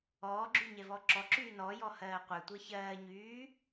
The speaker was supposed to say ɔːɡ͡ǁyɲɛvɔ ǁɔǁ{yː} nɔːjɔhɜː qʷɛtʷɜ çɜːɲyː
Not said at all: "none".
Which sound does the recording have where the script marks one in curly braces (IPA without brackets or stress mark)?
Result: yː